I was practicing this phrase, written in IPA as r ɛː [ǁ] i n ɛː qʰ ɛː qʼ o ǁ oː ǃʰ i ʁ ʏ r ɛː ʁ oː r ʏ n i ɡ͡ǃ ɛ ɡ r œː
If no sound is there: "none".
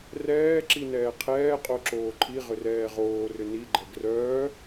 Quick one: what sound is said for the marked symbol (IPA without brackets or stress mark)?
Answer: ǁ